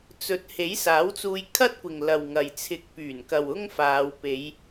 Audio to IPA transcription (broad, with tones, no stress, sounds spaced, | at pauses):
t͡s ɵ˨˥ t̚ h e˨˥ j s aː˨˥ w t͡s uː˧ j kʰ ɐ˥ t̚ kʷ ɪ˨ ŋ l ɐ˨ w ŋ ɐ˨ j t͡sʰ ɪ˨ k̚ p yː˨˩ n k ɐ˨ w ʊ˥ ŋ f aː˨˧ w p e˨˧ j